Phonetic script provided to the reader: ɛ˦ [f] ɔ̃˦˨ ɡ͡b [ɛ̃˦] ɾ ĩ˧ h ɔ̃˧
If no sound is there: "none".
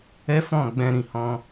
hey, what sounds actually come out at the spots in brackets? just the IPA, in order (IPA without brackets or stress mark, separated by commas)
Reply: f, ɛ̃˧